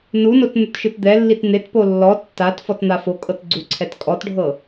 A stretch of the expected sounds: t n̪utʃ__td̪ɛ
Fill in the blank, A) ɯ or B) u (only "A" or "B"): A